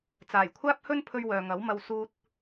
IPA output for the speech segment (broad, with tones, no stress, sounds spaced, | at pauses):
t͡s aː˨˩ j kʷʰ aː˥ p̚ h ɵ˥ n pʰ ɵ˧ ɥ w œː˨ ŋ ɐ˨˥ w m ɐ˧ w s uː˧ t̚